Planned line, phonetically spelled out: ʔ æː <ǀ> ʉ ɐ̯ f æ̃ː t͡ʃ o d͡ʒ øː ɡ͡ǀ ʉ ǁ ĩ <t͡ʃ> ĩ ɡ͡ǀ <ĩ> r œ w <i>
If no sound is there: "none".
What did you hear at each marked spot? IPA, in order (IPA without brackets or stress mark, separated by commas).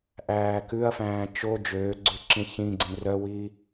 k, ç, ĩ, i